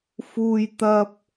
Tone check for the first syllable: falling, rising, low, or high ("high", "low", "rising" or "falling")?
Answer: high